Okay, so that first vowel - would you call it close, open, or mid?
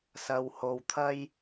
open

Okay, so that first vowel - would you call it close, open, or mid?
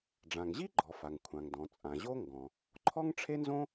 open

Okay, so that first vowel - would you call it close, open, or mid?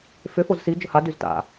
close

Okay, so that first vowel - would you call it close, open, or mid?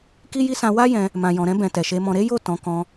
close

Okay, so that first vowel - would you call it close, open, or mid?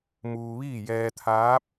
close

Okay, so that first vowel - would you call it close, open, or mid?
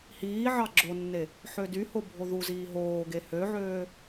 close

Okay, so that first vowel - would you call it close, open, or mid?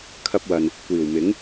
open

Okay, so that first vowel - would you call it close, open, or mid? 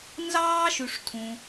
open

